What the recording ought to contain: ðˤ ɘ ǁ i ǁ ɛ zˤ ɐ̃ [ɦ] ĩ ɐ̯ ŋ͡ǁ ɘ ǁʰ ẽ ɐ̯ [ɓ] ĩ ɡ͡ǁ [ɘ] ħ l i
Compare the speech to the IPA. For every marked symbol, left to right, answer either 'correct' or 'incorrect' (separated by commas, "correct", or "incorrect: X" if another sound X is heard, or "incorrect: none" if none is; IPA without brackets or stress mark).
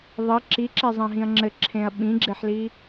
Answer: correct, correct, incorrect: e